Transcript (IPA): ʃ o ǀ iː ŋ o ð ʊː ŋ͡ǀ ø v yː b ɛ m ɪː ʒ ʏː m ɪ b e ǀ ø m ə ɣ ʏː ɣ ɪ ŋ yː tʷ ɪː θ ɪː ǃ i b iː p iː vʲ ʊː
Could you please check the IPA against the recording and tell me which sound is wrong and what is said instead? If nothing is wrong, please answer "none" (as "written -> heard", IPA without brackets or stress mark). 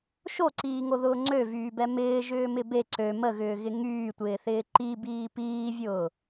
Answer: none